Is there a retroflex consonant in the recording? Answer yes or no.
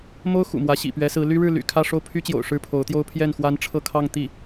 yes